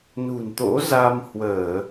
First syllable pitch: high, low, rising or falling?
low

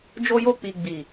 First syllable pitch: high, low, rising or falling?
high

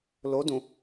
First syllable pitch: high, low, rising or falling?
rising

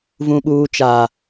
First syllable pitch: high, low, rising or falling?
low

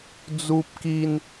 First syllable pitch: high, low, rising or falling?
high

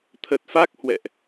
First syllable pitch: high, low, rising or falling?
low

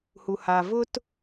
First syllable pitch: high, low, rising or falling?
low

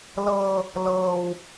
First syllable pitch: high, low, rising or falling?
low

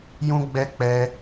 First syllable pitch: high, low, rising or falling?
high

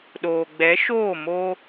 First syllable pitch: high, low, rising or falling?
low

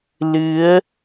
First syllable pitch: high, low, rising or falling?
rising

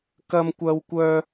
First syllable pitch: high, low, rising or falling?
high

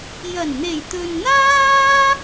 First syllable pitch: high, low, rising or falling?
low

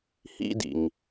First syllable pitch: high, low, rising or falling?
high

